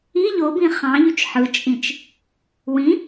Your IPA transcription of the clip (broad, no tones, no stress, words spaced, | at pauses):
i ʎobĩ χɑ̃ʎyt͡ʃ ħɯt͡ʃʼĩt͡ʃ | wĩ